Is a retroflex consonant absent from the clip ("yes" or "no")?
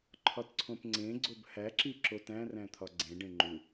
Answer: no